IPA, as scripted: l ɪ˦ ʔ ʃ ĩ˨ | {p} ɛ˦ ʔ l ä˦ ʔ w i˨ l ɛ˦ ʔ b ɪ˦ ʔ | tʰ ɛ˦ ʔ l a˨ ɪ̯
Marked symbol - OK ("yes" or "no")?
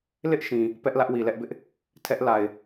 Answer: yes